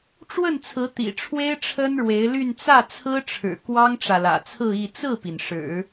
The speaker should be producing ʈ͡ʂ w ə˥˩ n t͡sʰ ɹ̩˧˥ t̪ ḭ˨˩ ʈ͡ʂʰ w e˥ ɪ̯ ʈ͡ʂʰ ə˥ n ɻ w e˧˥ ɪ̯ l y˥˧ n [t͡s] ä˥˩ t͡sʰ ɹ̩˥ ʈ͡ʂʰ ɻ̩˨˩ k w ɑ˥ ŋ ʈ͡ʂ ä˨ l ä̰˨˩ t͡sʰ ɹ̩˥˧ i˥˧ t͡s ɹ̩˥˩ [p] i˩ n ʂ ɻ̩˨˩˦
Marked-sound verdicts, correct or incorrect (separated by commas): correct, correct